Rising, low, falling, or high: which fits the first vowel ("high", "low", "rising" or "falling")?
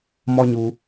high